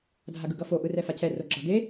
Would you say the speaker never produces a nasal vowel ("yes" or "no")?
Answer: yes